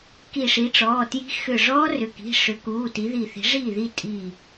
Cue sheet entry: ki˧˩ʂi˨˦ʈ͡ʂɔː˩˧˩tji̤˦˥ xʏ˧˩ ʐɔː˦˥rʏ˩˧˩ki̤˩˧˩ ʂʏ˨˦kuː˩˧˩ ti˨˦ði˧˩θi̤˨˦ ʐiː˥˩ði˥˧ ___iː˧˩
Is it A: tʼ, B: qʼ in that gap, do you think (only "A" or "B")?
A